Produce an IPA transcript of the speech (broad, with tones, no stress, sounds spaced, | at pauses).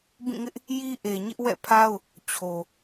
b ĩ˦˨ ŋ ɪ˦ ʔ | j i˦ ʔ e˨ ɲ ɪ˦ ʔ w ɛ̰˦˨ pʰ a˦ ʊ̯ | t͡ɕʰ o˨